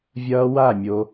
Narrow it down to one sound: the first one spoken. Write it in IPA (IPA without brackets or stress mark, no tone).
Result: vʲ